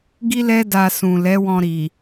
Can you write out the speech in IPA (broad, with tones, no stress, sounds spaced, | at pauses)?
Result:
ɡ i˦ l ɛ˦ d a˧ s ũ˨ l ɛ˨˦ w ɔ̃˧ ɾ i˨